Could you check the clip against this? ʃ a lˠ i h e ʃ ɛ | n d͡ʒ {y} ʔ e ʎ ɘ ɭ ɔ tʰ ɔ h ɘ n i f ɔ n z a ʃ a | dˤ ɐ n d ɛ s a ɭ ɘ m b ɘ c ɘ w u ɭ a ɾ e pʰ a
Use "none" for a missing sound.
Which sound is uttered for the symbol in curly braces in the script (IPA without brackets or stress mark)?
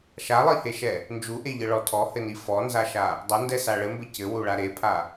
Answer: u